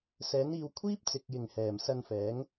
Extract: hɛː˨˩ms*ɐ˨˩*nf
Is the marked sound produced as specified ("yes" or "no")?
no